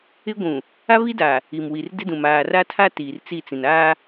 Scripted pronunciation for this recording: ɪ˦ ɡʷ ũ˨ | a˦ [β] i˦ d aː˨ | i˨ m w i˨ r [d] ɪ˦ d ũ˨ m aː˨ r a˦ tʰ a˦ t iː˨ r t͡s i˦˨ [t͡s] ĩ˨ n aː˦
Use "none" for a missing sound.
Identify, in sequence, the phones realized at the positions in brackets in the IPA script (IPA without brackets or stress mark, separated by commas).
β, d, t͡s